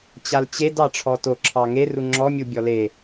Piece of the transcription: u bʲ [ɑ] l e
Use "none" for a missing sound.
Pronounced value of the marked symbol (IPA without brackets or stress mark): ɔ